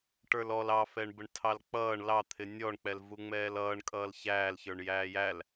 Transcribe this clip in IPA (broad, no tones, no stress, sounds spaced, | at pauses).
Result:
ʈ ə˞ l ɔ l ɑ f ɛ ɳ b ə ɳ tʰ ɑ l k͡p ʌː ɳ l ɑ t̪ʰ ɪ nʲ ɔ ɳ k͡p ɛ l v u ŋ͡m ɛː l ʌː ɳ kʼ ʌː l ç æː l ç ə˞ ɳ j æː j æ l